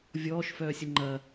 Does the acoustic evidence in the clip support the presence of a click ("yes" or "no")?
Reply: yes